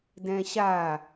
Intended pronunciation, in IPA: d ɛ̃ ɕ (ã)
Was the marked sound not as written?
yes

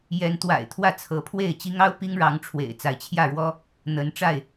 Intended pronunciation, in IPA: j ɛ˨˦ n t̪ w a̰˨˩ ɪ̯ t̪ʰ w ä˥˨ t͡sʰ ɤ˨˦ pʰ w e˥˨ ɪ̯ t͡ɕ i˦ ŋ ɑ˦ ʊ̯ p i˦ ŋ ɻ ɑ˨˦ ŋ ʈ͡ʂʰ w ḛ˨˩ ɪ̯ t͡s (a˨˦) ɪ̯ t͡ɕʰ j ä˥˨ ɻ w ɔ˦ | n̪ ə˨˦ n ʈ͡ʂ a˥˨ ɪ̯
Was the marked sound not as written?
no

